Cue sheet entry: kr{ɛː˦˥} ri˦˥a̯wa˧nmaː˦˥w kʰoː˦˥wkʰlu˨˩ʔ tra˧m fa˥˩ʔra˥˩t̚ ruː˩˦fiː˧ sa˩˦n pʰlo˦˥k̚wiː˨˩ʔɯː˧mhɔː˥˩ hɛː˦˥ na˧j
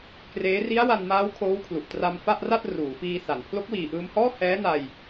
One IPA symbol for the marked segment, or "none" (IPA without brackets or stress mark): eː˦˥